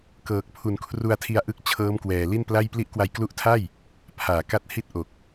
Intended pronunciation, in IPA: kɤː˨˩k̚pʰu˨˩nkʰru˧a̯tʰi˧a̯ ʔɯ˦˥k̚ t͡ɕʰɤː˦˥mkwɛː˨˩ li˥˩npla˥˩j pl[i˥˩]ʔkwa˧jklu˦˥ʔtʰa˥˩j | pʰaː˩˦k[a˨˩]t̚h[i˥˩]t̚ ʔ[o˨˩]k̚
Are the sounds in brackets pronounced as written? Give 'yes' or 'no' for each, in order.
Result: no, no, yes, yes

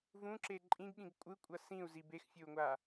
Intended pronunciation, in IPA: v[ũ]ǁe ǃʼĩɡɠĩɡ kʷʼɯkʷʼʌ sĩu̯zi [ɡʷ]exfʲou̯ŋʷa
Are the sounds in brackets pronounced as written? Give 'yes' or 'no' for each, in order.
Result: yes, no

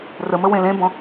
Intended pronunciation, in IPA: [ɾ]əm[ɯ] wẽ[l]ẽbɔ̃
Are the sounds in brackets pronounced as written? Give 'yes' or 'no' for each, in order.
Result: no, no, yes

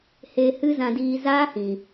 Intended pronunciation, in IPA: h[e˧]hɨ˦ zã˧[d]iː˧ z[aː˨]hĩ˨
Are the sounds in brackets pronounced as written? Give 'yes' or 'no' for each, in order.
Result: yes, yes, no

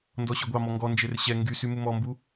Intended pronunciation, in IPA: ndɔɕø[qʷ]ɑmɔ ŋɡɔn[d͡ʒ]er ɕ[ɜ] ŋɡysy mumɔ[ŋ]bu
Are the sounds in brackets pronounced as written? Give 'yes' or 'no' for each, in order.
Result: no, yes, no, no

